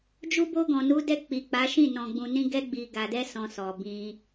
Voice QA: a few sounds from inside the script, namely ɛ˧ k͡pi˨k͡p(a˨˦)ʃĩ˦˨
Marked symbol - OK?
yes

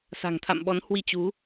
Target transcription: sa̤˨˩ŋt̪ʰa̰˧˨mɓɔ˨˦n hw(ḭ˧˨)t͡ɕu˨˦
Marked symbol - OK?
no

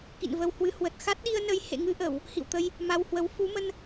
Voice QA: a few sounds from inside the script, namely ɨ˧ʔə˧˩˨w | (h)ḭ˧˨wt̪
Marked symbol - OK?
yes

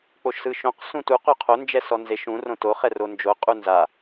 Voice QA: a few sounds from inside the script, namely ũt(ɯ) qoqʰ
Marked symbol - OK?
no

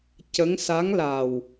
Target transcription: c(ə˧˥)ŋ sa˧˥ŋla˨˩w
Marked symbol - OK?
yes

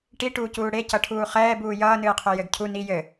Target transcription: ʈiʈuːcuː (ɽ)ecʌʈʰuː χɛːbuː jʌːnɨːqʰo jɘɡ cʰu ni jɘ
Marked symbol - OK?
yes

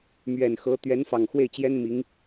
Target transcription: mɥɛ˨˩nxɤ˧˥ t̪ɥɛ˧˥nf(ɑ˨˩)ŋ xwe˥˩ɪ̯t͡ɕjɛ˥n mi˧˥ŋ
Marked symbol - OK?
yes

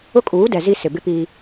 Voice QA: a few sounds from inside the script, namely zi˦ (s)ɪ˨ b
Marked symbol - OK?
yes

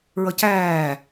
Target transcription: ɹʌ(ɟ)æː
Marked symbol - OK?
no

